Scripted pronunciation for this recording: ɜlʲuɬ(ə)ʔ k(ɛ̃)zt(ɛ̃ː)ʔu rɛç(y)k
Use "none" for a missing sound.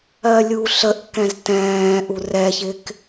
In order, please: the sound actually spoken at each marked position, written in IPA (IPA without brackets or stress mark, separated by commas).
ə, ɛ̃, ɛ̃ː, ɪ